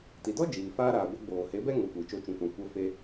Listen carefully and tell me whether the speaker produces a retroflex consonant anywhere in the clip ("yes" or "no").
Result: no